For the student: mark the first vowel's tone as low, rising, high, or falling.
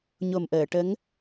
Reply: low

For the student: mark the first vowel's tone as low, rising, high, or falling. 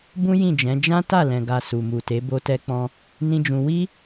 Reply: high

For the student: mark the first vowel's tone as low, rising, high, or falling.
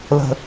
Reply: low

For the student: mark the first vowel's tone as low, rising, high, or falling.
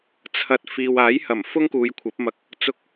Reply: low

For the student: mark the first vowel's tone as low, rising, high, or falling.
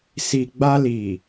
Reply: low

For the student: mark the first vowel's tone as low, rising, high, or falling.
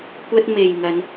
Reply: high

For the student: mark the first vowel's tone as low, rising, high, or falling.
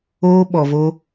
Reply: high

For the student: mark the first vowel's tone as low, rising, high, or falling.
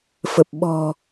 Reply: low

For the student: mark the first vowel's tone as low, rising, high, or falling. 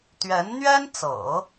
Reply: rising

